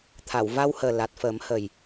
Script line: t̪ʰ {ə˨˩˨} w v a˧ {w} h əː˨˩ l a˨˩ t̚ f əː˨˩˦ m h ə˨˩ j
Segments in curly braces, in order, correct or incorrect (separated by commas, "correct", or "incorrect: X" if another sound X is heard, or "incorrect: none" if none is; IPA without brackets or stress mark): incorrect: a˨˩˨, correct